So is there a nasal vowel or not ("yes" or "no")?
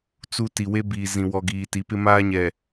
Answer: yes